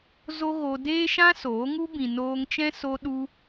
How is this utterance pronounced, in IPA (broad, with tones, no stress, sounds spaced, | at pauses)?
z o˦ ɣ o˧ d eː˦ ʃ ã˦ s oː˨˦ ŋ u˦ b ĩ˨ n oː˧ ŋ t͡ʃ ɛ̃˦ s o˦ ɗ u˧